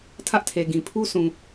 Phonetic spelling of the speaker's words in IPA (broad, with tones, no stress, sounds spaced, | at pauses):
tʰ ä˦ ʔ tʰ e˨ ɡ ĩ˨ pʰ u˦ s ũ˨